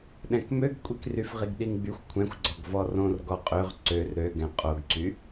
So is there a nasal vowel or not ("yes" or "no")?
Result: yes